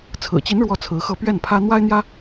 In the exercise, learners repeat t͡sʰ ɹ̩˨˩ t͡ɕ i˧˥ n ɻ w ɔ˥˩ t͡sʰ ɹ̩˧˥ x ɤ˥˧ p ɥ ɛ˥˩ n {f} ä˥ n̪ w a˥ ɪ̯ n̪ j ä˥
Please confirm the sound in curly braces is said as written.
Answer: no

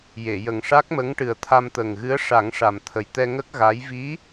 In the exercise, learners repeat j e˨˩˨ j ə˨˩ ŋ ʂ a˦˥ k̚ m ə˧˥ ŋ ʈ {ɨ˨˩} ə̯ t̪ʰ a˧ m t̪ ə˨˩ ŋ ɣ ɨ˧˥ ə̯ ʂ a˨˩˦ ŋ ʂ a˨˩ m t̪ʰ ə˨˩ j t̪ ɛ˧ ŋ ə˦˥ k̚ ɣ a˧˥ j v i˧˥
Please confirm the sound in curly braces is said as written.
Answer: yes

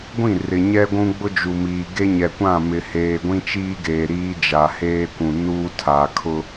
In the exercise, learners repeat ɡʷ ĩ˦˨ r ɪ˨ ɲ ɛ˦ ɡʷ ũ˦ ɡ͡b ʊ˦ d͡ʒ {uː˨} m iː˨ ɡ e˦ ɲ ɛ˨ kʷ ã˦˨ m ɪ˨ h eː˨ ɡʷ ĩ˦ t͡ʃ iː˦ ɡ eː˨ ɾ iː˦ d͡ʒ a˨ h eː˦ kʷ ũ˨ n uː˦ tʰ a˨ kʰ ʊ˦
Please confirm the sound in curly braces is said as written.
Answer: no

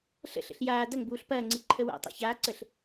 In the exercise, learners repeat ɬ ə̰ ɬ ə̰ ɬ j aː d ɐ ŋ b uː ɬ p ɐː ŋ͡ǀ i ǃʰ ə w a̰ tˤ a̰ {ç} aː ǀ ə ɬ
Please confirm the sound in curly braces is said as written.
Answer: yes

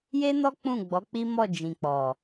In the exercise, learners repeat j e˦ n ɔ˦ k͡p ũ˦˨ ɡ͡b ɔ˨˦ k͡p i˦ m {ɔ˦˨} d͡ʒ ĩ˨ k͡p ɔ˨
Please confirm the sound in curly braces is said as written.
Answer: yes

